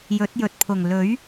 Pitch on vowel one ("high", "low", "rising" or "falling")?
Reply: rising